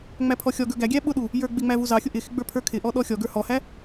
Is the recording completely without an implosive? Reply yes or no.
no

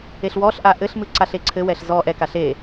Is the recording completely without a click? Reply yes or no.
no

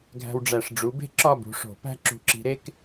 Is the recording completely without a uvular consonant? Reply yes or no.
yes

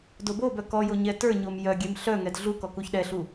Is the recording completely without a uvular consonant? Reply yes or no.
yes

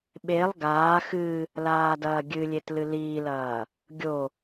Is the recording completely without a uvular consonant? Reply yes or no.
yes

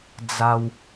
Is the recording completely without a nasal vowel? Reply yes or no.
yes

